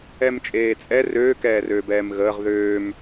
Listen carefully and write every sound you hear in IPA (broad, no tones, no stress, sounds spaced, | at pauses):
ɛ m t͡ʃʼ eː t͡sʼ ɛ r øː k ɛː r øː b ɛː m ɣ əː ʁ ð øː m